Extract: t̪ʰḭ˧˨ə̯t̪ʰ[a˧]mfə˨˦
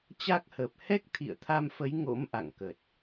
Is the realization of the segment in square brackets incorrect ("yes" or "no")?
no